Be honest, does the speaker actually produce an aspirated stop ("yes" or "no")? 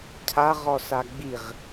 yes